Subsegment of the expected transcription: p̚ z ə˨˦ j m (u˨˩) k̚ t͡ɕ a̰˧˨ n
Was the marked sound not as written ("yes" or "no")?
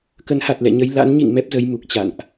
no